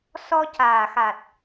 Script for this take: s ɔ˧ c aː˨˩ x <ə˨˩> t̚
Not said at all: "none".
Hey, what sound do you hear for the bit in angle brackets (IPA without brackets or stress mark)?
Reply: a˨˩